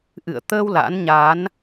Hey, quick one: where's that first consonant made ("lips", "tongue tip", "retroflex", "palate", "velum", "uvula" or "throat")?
throat